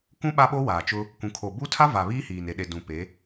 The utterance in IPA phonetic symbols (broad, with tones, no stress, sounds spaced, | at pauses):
k ũ˦ ɓ a˦ ɓ o˦ w aː˨ t͡ʃ ʊ˦ | kʷ ũ˨ kʰ o˨ b u˦ tʰ a˦ v a˨ β iː˦ h iː˨ n e˨ ɗ e˨ d ũ˨ p e˨˦